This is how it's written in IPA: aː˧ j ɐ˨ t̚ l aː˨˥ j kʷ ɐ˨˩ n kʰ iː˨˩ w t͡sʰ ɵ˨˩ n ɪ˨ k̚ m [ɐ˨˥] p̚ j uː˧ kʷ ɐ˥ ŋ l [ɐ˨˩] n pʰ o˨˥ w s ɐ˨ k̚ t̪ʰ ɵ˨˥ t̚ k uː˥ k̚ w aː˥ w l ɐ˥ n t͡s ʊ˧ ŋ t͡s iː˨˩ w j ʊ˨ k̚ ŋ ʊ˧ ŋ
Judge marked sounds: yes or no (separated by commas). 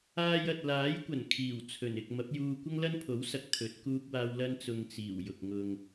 yes, no